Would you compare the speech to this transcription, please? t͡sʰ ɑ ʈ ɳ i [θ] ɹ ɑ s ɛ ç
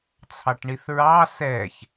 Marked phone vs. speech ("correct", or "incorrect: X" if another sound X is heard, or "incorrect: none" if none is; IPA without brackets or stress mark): correct